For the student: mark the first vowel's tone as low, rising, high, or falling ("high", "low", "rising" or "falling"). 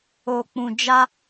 low